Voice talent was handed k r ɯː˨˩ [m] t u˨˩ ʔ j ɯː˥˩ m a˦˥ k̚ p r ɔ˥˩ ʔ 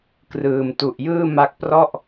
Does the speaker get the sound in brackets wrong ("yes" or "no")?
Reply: no